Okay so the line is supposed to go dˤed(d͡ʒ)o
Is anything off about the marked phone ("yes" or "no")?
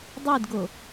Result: yes